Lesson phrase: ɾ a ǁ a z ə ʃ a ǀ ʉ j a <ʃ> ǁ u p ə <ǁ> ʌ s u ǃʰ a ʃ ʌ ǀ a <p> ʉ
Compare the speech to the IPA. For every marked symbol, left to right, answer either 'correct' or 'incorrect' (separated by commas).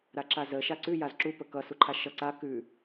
incorrect, incorrect, incorrect